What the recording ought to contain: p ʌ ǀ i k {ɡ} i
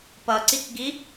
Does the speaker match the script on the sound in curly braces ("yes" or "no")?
yes